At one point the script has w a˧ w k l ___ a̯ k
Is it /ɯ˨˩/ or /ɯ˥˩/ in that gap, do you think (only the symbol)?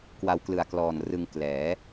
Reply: ɯ˨˩